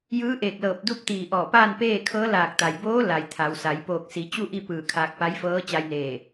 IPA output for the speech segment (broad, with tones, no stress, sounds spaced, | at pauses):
j ɯː˧˥ ʔ eː˧˩ k̚ l ɤː˧˩ p̚ d u˥˨ p̚ t̪ iː˧˩ ʔ ɔː˧˩ p aː˥˨ n p eː˥˨ kʰ ɤː˧˥ l aː˧˩ k̚ t̪ a˩ j b oː˧˥ l a˩ j t̪ʰ a˩˧ w s a˩˧ j p oː˧˩ k̚ s i˩˧ t͡ɕ u˥˨ ʔ i˥˨ p ɯː˧˩ kʰ aː˧ k̚ p a˧˥ j f ɤː˧˥ t͡ɕ a˧ j n eː˧˩